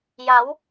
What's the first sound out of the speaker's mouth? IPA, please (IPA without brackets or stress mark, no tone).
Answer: j